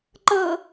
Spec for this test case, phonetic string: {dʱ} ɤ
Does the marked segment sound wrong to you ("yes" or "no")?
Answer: yes